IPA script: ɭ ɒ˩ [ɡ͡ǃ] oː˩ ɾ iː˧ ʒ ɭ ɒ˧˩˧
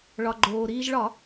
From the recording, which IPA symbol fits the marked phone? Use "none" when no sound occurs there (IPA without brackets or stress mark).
ɡ͡ǃ